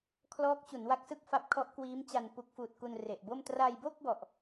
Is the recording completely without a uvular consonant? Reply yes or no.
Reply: yes